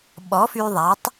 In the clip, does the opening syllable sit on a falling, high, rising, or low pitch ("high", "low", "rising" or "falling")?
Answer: rising